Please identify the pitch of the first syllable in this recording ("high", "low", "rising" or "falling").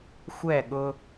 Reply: falling